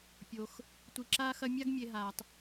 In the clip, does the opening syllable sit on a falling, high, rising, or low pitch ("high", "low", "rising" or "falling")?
low